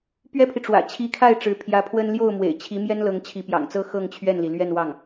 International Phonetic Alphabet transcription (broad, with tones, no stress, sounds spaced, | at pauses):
p ɥ ɛ˥ pʰ i˨ ʈ͡ʂ w ä̰˨˩ t͡ɕʰ i˧˥ kʰ a˥˩ ɪ̯ ʈ͡ʂ ɻ̩˧˥ pʰ j ä˧˥ pʰ w ə˥ n l j o˥˩ ʊ̯ m w ḛ˨˩ ɪ̯ t͡ɕʰ i˧˥ m j ɛ˥ n l ɤ˧˥ ŋ t͡ɕʰ i˧˥ p j ɑ̰˨˩ ŋ t͡s ɤ˥ x ɤ˥˧ ŋ t͡ɕʰ ɥ ɛ˥˩ n l i˩ l ɥ ɛ˥˧ n w ɑ˥˩ ŋ